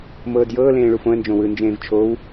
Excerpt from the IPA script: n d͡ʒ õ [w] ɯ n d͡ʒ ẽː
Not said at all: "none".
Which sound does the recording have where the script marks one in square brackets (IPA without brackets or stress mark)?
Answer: w